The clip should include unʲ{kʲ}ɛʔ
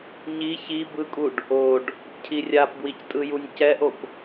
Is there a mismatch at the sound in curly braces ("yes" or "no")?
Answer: yes